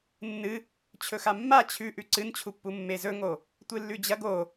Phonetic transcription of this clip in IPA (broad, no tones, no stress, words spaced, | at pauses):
nːɨ | t͡ɕʰɵxamːa t͡ɕʰʉʔʉ ǀɨnt͡ɕʰupːu mːezɵŋo | tʷɨlːʉd͡ʑɐɡ o